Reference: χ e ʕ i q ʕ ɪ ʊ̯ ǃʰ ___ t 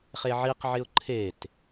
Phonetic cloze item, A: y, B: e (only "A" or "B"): B